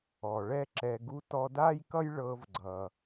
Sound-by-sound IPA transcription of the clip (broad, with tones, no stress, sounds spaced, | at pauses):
ɔ˨ ɭ ɛ˦ ǁ ɛ˧ ɡ u˧ t ɔ˧ d a˦ j k ʌ˦ j ɭ ɤ˧ v ɡ͡ǀ ʌ˨